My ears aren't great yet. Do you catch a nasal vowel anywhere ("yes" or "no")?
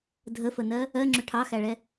no